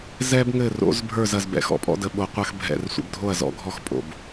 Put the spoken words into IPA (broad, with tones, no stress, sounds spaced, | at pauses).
z ɛ˧ b ŋ ɘ˧˩ r o̰˩˧ z bʱ ə˞˥˩ z ɐ˧˩ z b ɛ̰˩˧ x ɔ̰˩˧ pʼ ɔ̰˧ d ə˩˧ ɓ o˩˧ qʷ ɐ˧ x bʱ ɛ̰˧˩ r sʷ ə̰˧˩ b dʱ o˥˩ ɐ̯ z ɔ̰˧˩ ɡʱ ɔ˥˩ x pʼ o̰˧˩ b